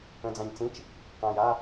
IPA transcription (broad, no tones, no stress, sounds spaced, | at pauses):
ə̃ d͡z ã ɲ t͡s ĩ t͡ʃ | q ã j a